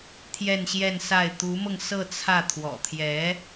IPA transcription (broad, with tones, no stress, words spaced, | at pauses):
t̪ʰjɛ˥˧nɕjɛ˥˧nsa˥˩ɪ̯ t̪u˧˥mɤ˧ŋ sɤ˥˧t͡sʰä˥˩ t̪ʰwɔ̰˨˩t̪ʰjɛ˧˥